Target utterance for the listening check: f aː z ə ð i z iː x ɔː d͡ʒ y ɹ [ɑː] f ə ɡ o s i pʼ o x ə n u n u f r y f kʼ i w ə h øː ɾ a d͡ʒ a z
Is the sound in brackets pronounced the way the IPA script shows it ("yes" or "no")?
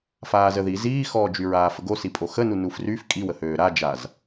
no